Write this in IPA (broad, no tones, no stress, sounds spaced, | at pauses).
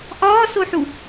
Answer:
ʔ ɒː s o ħ u